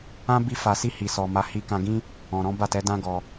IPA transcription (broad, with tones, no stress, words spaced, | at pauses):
ã˦ bi˧fa˨si˧ hi˨sɔ˨ma˨˦ hi˧ kã˧ɡĩ˦ | ɔ̃˨ɾɔ̃˨˦ba˦˨tɛ˨˦ dã˦ ɡɔ˧